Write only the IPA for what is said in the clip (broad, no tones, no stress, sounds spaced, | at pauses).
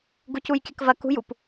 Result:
ɡ u c u j kʲ ɐ k v ɐ k ṳ j u p